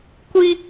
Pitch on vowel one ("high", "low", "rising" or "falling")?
high